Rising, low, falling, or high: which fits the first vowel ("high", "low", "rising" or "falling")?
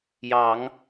rising